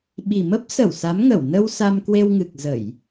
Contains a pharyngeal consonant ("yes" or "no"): no